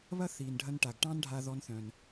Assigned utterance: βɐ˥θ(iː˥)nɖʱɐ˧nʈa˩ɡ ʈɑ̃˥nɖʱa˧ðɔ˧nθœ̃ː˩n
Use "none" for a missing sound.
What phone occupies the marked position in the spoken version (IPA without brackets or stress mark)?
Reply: iː˩